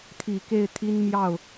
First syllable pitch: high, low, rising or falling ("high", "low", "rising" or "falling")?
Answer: low